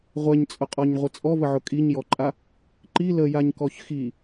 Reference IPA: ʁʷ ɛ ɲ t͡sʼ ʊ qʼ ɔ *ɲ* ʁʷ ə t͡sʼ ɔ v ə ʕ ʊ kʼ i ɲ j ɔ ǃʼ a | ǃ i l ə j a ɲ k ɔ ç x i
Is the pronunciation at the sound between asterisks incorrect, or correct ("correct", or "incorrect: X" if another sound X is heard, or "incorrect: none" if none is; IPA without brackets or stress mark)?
correct